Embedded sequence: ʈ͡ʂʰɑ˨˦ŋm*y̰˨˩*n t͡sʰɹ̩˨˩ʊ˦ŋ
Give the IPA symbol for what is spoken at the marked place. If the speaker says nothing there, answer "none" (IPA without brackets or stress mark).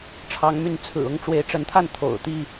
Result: y˨˦